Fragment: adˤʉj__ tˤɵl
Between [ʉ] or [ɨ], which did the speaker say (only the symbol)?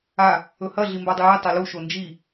ɨ